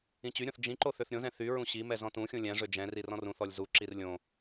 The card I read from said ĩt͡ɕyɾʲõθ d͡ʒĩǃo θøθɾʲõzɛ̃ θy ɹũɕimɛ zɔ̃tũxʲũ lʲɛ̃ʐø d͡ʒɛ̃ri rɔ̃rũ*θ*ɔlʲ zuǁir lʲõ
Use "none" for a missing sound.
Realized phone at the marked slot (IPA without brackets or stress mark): θ